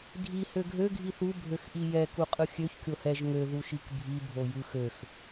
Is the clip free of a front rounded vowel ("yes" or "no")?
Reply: no